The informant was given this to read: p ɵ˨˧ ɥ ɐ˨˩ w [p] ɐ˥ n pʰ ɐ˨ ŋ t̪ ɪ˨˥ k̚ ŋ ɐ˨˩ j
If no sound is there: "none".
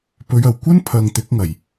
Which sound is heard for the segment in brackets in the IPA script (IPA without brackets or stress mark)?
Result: kʷ